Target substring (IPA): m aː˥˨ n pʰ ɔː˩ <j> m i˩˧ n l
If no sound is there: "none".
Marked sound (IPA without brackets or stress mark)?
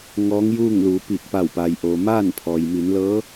j